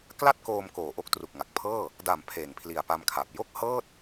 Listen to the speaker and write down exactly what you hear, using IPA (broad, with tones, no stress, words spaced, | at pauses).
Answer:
kla˥˩t̚koː˧m koː˨˩ ʔo˦˥k̚tru˨˩k̚ŋa˨˩k̚ pʰɤː˥˩ | da˨˩m pʰeː˨˩ŋpʰli˨˩a̯pa˧mkʰaː˨˩p̚ jo˥˩k̚hɤː˥˩t̚